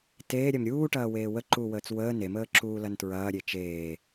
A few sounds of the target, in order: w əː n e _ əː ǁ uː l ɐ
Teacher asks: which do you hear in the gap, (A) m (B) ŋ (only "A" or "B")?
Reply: A